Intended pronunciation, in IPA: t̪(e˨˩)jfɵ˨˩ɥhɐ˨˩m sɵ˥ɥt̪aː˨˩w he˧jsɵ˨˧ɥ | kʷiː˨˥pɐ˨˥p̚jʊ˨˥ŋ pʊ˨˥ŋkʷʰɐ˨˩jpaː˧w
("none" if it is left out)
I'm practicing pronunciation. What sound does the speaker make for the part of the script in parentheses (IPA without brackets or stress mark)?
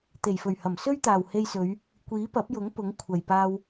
e˨˩